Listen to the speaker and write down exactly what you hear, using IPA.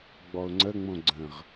ɡ͡b ɔ ʊ̯ ŋ͡ǀ ə ŋ͡m õ ɡ͡ǀ ə̃ ʁ

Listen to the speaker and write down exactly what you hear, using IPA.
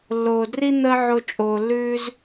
lː oː˨ d r i˦ n̪ əː˦ ʕ o˧ t͡ʃʼ oː˨ lː ʉː˦ z

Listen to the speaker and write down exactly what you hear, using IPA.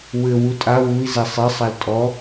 w ɘ w u tʼ a w u i̯ z ɛ sˤ e sˤ a l tʼ ɔ

